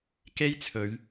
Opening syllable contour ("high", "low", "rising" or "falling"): high